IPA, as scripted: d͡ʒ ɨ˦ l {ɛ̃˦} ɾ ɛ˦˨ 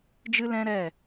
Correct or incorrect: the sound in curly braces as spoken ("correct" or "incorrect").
correct